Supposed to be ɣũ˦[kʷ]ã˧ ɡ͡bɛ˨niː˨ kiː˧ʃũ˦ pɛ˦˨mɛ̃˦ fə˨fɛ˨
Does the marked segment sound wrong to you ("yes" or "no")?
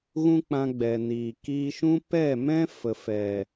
yes